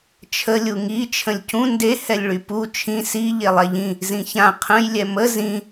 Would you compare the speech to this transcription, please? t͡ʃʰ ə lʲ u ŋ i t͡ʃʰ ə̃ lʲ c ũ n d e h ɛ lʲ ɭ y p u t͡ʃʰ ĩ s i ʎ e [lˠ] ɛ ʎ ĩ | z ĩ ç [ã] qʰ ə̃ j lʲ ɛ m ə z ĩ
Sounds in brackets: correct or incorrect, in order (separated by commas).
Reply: correct, correct